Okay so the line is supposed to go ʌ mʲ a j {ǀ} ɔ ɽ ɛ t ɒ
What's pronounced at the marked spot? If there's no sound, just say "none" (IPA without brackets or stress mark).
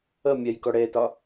k